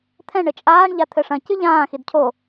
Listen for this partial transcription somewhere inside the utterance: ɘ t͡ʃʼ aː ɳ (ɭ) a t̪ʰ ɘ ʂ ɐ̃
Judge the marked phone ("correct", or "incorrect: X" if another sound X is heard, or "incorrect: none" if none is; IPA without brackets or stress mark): incorrect: ʎ